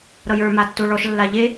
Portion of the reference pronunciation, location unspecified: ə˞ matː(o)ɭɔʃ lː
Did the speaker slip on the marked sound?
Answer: no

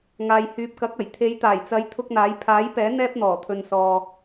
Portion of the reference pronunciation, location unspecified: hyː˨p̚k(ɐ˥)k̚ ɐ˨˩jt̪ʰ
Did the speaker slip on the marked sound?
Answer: yes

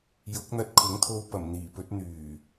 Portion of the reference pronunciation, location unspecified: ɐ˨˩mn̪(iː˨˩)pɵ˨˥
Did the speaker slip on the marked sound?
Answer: no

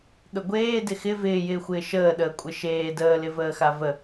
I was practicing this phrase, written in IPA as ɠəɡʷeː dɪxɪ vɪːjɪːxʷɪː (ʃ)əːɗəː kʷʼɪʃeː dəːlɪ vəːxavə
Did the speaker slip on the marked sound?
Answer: no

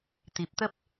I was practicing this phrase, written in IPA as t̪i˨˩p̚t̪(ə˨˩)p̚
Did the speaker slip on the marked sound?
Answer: yes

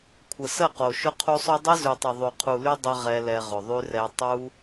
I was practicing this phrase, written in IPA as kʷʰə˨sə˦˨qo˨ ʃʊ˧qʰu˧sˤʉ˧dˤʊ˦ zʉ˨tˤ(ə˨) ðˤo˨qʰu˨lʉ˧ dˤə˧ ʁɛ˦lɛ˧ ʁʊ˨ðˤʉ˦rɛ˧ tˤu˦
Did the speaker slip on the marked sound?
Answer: no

